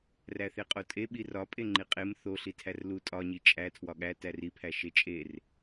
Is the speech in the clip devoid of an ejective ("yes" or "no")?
no